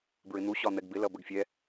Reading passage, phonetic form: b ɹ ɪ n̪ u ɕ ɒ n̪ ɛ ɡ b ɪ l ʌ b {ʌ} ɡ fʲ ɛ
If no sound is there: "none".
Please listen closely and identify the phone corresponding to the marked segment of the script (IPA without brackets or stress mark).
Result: ə